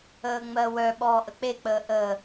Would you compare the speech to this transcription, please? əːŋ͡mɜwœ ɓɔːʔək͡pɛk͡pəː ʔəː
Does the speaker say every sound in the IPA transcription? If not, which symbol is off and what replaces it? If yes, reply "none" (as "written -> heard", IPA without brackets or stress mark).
ɛ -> e